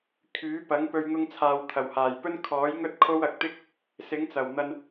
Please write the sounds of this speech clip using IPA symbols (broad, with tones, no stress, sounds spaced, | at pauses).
kʰ yː˨˥ p ɐ˨˥ ŋ p ɵ˧ ɥ ŋ ʊ˧ ŋ t͡sʰ aː˨ w t̪ʰ ɐ˨˩ w h aː˨˩ j p ɵ˥ n kʰ ɔː˨˥ j ŋ ɵ˥ t̚ kʰ o˥ w ɐ˨ k̚ t̪ ɪ˥ k̚ | s ɪ˨˥ ŋ t͡s ɐ˨˩ w n̪ ɐ˧ n